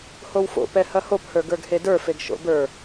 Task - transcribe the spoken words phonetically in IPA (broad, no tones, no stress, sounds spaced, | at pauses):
h o w f o̰ p ɛ h ɐ h o p h ə˞ ɡ ə˞ ɡ h e d ə˞ f e ɡ ʃ o̰ b ə˞